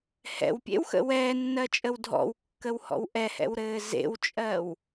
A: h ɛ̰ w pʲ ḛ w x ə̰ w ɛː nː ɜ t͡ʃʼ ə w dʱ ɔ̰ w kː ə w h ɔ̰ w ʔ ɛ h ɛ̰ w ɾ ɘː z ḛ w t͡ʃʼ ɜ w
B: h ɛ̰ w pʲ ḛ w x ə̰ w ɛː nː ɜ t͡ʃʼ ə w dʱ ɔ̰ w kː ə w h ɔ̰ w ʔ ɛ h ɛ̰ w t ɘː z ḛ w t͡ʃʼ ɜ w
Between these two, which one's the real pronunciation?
A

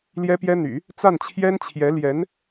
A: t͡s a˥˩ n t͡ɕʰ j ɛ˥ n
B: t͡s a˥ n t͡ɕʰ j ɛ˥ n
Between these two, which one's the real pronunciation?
A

